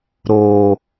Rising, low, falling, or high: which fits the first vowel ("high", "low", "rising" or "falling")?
low